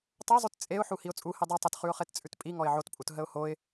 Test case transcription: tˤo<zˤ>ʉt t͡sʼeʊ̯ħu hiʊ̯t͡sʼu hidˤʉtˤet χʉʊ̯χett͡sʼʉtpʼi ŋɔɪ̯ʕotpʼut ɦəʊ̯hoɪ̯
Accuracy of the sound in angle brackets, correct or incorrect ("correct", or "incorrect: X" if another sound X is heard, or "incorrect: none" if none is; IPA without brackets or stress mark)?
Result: correct